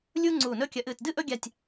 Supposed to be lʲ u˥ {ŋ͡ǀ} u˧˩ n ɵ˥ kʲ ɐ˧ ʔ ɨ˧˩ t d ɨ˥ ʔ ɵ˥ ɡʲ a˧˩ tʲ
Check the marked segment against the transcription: correct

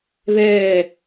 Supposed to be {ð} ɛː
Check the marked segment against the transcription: correct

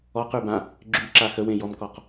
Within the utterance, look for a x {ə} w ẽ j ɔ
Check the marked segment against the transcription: correct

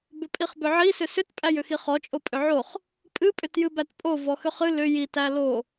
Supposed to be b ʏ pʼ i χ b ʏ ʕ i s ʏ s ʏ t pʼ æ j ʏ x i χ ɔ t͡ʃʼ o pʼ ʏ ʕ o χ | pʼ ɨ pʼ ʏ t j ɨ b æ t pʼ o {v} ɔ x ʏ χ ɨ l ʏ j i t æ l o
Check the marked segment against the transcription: correct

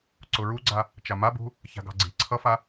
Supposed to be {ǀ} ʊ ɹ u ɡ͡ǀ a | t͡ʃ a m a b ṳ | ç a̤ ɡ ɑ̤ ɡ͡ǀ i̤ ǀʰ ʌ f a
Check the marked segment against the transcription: correct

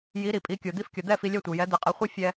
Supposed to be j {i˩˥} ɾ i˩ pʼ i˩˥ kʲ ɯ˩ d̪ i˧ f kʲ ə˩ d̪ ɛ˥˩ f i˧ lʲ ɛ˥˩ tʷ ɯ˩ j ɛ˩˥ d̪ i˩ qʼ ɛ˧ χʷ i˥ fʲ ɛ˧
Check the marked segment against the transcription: correct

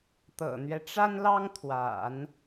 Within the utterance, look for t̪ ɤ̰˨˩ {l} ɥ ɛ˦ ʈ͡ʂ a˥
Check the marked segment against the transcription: incorrect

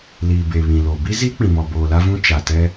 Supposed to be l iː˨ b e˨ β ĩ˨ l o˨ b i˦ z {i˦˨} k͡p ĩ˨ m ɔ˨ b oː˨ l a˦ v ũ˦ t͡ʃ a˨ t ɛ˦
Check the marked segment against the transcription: incorrect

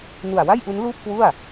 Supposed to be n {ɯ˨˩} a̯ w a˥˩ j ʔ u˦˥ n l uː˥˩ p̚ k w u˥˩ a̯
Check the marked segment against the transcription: incorrect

